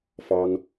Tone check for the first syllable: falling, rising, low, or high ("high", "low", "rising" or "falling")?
high